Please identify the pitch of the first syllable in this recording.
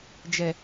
low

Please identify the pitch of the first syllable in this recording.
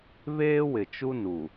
high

